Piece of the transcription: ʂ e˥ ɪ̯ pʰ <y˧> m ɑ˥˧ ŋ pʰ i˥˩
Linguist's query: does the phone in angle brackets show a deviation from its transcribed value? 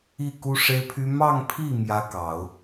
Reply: yes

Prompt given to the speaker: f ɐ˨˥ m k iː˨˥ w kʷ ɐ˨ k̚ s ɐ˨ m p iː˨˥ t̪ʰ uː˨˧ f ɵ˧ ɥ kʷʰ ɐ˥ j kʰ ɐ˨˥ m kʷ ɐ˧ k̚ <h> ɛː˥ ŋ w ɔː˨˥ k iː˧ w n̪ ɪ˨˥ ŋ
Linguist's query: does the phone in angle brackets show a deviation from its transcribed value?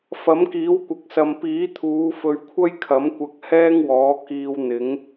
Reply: no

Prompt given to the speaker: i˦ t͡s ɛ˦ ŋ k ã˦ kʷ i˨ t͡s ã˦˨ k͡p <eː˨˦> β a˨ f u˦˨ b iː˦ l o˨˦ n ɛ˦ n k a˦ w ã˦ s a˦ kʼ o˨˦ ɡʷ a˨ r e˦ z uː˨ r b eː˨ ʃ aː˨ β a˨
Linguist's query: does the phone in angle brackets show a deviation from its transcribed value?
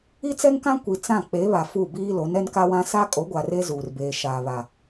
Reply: yes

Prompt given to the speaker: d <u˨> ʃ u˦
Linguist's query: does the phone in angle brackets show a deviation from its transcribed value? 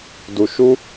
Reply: no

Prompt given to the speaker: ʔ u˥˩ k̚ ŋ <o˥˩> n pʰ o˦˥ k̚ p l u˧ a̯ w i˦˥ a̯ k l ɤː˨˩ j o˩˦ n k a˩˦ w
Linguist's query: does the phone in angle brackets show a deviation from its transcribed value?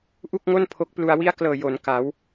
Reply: no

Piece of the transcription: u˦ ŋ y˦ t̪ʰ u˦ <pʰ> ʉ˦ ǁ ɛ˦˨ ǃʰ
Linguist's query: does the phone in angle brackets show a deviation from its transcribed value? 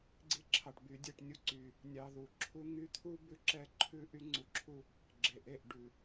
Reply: yes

